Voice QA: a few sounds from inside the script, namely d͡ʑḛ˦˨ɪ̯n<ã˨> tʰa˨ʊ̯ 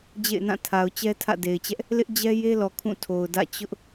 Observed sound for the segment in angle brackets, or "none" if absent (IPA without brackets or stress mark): ã˦˨